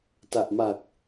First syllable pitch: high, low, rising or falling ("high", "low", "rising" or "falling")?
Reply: low